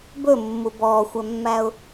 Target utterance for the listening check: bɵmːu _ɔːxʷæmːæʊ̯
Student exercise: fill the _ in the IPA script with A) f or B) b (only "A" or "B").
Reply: B